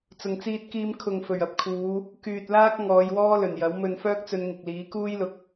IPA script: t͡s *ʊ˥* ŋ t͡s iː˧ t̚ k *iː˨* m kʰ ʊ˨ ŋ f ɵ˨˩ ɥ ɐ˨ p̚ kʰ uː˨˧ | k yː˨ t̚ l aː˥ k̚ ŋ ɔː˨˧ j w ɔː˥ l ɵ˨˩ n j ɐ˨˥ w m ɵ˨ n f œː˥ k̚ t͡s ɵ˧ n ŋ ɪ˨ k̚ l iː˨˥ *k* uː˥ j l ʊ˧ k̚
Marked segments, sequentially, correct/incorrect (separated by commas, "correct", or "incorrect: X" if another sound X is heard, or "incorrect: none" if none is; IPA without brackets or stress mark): incorrect: ʊ˨˩, incorrect: iː˧, correct